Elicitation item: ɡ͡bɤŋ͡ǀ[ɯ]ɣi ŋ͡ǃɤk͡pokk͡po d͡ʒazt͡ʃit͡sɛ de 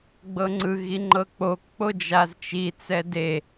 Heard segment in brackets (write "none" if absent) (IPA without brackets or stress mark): ɯ